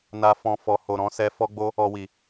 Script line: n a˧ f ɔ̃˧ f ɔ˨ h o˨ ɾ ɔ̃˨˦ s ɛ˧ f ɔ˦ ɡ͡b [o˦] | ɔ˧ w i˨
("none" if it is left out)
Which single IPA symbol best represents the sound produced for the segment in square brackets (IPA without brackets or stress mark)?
o˦